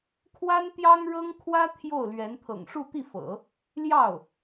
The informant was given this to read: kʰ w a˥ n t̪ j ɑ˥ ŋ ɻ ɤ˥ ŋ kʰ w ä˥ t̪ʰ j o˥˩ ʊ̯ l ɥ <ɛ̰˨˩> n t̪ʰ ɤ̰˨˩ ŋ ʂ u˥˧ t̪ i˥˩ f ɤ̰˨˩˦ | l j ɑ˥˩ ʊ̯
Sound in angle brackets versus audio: incorrect: ɛ˧˥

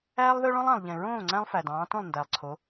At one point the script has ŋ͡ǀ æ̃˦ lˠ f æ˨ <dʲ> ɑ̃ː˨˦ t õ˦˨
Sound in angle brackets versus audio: incorrect: d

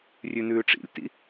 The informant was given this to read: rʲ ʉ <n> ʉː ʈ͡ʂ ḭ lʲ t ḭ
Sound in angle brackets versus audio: correct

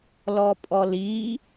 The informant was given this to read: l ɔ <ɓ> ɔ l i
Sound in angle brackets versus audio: incorrect: pʼ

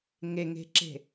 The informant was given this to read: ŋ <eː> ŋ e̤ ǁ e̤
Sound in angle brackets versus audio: incorrect: e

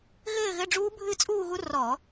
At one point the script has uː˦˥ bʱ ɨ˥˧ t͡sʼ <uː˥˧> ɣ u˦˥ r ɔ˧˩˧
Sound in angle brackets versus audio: correct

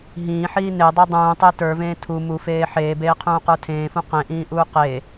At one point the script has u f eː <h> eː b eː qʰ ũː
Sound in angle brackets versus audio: incorrect: ħ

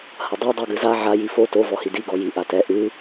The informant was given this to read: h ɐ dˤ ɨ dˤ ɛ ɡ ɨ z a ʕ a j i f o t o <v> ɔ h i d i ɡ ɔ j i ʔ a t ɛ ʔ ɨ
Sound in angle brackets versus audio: correct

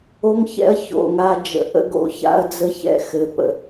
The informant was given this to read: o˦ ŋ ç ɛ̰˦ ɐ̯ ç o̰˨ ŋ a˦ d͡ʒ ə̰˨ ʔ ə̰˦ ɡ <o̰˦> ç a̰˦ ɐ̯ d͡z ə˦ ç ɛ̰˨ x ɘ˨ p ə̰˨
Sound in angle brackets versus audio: correct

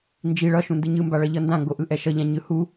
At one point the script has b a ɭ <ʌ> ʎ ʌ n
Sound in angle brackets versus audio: correct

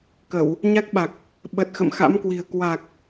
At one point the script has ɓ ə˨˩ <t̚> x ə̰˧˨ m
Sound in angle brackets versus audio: correct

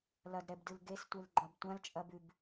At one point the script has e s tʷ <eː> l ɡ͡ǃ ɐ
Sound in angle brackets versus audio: incorrect: e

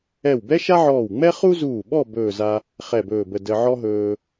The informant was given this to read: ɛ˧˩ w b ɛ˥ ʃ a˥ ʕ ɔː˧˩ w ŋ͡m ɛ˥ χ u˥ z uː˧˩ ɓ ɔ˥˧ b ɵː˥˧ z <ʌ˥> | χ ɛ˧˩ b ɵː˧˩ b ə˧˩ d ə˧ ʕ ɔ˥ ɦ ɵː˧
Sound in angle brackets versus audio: incorrect: a˥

